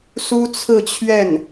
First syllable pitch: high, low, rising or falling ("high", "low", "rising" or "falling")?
high